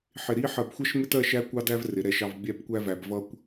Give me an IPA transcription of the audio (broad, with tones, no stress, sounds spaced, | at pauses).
ħ ɪ˧˩ ɾ i˥ ħ ɜ˧˩ b xʷ ɜ˥ ʃ m ɪ˥ t ɜ˥˧ ʃ æ˥ kʷ ɑ˥ d æ˥ v r ɪ˩˧ ɾ ɛ˩˧ ʃ ɑ˧ v bʲ æ˥˧ b kʷ æ˥ v æ˧ b v ʌ˥ kʷ